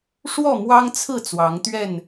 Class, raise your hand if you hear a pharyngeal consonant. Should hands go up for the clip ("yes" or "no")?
no